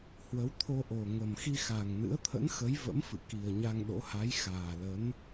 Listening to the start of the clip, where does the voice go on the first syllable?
rising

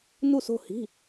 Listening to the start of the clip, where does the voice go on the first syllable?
falling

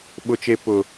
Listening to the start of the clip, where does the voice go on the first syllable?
high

